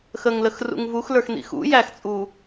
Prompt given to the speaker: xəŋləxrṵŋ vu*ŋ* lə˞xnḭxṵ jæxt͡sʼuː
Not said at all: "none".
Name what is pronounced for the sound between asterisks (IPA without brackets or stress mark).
x